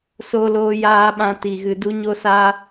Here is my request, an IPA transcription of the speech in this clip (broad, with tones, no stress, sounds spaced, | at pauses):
s o˦ l oː˦ j aː˦ ɓ ã˦ t i˧ ɣ ɨ˧ d u˦ ɲ o˦ s aː˦